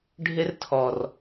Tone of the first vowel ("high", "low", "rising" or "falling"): high